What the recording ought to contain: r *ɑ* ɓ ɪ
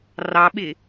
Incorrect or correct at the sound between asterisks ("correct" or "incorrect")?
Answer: correct